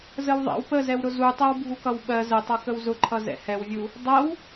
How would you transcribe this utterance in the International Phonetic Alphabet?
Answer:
zəwðˤɛ̰w pəzɛw ɾʊzutˤɛw bʱukʌwɓɜ zətˤʌ kəwzʊǃʰʌ zɛ̰hɛwvʲu | dˤɜw

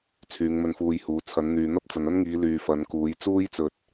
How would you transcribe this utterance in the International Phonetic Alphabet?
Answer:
t͡sʰyː˨˧ŋmɵ˧nfuː˧jhuː˨˧ t͡sʰɐ˨˧nn̪yː˨n̪ɐ˥p̚ t͡sɐ˨nɐ˥nŋiː˨˧ lyː˨fɐ˨˧nkuː˨˧j t͡suː˥jt͡sɵ˧t̚

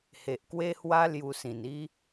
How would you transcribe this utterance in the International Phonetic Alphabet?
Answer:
he˨ʔkwe˦hwa˦ lju˧sĩ˨˩ni˦

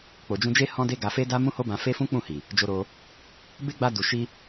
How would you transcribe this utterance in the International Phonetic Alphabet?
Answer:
k͡po˨d͡ʒũ˧d͡ʒe˦ hɔ̃˦de˦ɡa˧ fe˦da˦ mũ˦ho˦bã˧ fe˦fũ˦k͡pũ˦˨hi˨ | d͡ʒo˧ɾo˧ | be˦ ɡ͡ba˧ du˨ʃi˧

